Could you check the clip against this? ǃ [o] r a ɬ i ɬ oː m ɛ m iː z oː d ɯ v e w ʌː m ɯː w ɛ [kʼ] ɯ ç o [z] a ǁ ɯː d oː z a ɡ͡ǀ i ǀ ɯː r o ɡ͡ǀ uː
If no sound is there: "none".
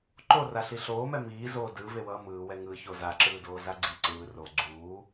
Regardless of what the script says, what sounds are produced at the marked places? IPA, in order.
o, ŋ, z

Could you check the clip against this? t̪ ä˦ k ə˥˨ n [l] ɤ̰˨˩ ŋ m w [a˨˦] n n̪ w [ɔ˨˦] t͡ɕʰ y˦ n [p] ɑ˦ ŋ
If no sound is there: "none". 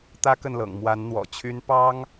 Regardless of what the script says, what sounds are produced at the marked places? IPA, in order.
l, a˨˦, ɔ̰˨˩, p

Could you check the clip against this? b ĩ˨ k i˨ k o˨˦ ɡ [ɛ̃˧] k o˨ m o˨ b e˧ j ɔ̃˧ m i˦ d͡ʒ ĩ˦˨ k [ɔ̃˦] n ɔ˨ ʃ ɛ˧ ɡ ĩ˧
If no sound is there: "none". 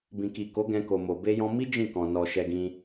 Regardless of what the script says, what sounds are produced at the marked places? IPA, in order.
ɛ̃˧, ɔ̃˨

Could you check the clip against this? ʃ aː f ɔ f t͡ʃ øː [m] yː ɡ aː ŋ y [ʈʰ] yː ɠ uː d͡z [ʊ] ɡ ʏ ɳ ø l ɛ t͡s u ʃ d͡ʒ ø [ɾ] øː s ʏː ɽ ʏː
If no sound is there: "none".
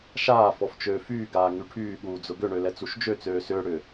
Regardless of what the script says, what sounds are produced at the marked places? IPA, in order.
f, ʈʰ, ʊ, t͡s

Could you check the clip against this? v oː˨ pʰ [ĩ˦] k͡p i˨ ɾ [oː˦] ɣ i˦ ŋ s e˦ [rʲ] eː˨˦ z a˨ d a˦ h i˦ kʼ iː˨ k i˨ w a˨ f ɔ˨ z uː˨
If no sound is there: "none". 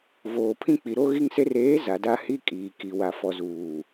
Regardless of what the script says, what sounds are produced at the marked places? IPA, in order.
ĩ˦, o˦, r

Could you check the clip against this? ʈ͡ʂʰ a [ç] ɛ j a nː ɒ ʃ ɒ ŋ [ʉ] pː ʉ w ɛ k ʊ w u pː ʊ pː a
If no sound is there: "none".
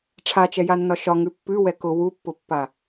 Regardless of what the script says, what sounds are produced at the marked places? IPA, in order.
t͡ʃ, ʉ

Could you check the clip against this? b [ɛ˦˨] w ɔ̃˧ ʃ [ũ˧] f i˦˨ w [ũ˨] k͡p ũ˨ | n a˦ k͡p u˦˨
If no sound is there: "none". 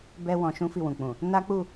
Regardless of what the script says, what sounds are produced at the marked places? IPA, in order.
ɛ˦, ũ˦, ũ˨

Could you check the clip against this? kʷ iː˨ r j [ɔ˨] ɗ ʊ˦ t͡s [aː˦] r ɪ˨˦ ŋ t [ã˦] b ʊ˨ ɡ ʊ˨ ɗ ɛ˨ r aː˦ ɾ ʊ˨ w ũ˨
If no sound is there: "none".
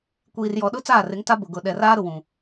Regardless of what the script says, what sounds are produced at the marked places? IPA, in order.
ɔ˨, aː˦˨, a˦

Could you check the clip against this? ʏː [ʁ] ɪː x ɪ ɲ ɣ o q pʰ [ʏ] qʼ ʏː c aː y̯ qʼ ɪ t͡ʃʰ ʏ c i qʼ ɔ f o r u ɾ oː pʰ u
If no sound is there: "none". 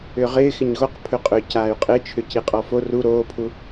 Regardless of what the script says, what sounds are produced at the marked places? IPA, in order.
ʁ, ʏ

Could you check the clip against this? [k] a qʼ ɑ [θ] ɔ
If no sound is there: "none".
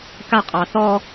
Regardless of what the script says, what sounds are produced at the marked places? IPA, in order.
k, θ

